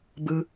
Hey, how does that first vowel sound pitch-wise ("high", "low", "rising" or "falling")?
low